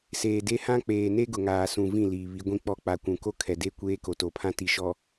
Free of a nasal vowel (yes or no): no